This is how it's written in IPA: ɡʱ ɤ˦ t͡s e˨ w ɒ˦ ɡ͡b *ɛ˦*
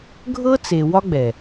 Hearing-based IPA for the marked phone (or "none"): ɛ˨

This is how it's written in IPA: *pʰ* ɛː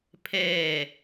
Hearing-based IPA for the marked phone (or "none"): pʰ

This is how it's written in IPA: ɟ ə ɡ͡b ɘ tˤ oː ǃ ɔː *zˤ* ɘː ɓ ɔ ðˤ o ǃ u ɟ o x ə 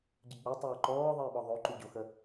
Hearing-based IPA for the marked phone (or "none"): ðˤ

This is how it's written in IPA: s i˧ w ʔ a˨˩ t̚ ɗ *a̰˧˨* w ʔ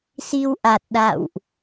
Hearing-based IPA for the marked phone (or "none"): a̰˧˨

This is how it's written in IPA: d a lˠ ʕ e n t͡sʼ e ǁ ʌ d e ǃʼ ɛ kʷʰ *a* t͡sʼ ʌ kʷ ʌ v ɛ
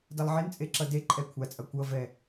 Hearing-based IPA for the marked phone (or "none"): a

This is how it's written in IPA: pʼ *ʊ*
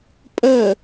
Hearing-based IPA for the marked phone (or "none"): ə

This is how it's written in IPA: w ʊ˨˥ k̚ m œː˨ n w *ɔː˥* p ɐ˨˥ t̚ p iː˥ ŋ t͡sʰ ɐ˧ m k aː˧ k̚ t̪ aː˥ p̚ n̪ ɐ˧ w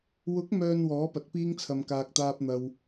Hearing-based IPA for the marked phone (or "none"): ɔː˨˥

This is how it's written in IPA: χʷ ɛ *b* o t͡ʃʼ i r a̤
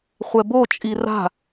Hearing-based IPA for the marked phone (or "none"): b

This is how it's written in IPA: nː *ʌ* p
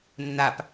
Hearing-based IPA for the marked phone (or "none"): a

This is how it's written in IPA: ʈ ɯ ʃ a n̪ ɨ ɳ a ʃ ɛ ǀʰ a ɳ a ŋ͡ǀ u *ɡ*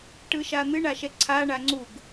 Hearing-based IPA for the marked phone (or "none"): ɡ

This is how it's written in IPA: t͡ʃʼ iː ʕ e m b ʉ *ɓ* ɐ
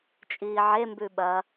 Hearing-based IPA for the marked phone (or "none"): ɓ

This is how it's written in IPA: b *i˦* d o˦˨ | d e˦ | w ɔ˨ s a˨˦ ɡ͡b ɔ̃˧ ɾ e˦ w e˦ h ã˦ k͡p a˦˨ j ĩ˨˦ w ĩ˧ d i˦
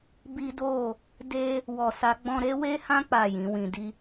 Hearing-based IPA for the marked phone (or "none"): i˦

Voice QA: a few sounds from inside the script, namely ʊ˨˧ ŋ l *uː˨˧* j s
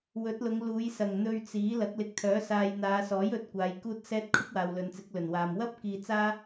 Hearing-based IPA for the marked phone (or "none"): uː˨˧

